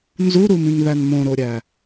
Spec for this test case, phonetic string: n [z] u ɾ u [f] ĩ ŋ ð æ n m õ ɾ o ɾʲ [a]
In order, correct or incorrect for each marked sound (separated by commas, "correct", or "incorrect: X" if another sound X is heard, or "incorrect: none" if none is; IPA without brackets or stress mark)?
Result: correct, incorrect: m, incorrect: æ